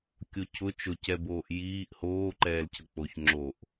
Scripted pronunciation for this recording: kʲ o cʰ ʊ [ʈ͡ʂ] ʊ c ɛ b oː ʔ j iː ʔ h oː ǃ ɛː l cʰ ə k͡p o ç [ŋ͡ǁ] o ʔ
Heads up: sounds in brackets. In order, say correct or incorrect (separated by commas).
incorrect, correct